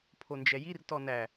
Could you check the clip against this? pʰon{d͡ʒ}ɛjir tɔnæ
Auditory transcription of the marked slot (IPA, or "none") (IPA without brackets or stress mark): d͡ʒ